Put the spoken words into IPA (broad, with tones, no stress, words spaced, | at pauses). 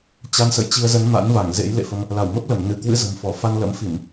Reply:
t͡ɕa˧nsə̰˧˨jt͡ɕi˧ə̯zə˨˦n ma̰˧˥nva˧˩ŋzḛ˧˥j lḛ˧˨fə˧m | la˧˩wmə˦˥p̚lə˧˩m nɨ˧˩kwɨ̰˧˥zə̤˨˩mfɔ˧˩ fa˧nlə̰˧˥mfi˧˩˨m